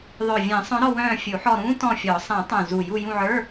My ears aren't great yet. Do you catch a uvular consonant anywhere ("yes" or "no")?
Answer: no